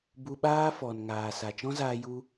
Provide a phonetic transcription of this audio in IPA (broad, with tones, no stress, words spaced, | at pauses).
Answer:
bu˧ɓaː˦fɔ˨n ŋaː˨sa˨t͡ʃɔ̃˦zaː˧ ju˦